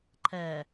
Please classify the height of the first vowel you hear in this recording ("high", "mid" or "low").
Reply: mid